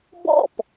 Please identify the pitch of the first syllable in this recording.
falling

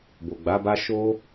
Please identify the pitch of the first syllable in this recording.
low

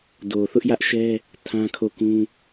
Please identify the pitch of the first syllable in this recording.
low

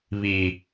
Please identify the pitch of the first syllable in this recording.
low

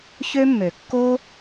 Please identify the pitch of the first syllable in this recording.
high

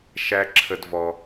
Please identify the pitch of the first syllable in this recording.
high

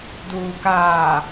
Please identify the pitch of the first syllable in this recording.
low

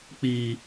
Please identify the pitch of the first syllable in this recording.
low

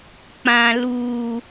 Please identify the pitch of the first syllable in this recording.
low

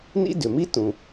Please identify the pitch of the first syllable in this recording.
high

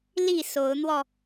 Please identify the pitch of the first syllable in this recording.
falling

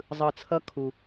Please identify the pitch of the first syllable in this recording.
low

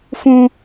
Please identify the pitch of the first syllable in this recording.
high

